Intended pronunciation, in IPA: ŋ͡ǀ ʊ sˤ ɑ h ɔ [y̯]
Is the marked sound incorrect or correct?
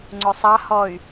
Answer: correct